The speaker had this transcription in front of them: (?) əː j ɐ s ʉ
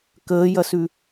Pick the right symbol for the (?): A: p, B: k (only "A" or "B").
B